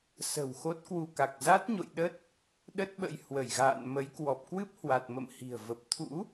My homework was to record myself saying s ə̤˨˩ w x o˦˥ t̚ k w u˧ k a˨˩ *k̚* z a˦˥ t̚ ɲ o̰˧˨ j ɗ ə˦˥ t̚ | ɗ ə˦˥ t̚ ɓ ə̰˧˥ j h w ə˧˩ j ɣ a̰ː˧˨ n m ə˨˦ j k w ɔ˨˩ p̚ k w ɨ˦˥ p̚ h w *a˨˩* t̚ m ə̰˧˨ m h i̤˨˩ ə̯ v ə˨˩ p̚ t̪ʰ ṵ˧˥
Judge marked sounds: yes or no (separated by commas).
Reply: yes, yes